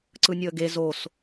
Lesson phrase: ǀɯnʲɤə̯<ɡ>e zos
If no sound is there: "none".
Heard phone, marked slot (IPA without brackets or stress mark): ɡ